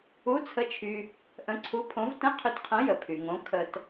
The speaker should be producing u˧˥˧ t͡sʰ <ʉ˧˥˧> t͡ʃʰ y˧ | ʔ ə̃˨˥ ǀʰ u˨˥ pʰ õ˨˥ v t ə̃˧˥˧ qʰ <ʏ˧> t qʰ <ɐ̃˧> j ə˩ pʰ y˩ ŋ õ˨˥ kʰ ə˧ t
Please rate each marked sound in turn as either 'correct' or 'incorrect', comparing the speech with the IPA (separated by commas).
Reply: incorrect, correct, incorrect